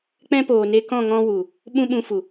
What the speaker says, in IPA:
k͡p ɛ̃˦ p oː˨ n e˧ k ɔ̃˦˨ ŋ ɔ̃˦ w u˨ | ɓ ũ˦ ɓ ũ˧ f u˨

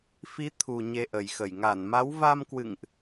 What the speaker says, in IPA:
f i˨˦ t̪ʰ u˨˩ ɲ e˧ ʔ ə˨˩ j x ə˧˩ j ŋ a˧˩ n m a˨˦ w v a˧ m k w ɨ̰˧˨ ŋ ʔ

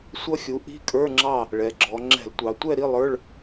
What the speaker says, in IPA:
sʷ ʌ˦˥ xʲ u˩˥ ʔ i̤˧˥˧ kʼ ə˞˧˥˧ ŋ͡ǁ ɑ˥˨ | ɭ ɛ˩˧ ɡ͡ǁ ɔ˩˧ ŋ͡ǁ ɛ̤˧˩˧ l tʷ ɑ˩˧ tʷ ɛ˥˨ ɾ i˧˥˧ lˠ ə˞˧˥˧ ɭ

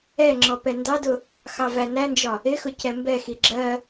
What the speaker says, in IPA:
ɛ ŋ͡ǁ ɔ p ɛ n d ɑ d ʊ | x ɑ v æ n æ n d͡ʒ ɒ | ɪ x ʊ c ɛ m b ɛ x i ɡ͡ǁ ɜ

